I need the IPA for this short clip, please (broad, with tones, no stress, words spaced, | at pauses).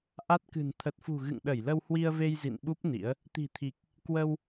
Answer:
ʔa˦˥t̚kɨ̤˨˩n t̪ʰə˨˩t̚fṳ˨˩ ɣɨ̰˧˨ŋɗə˧˩jlə˧w hwi˧ə̯ve˧j zḭ˧˨nɓu˦˥p̚ nḭ˧˥ə̯ | t̪i̤˨˩t̪ʰi˨˩k̚ | kwə˧w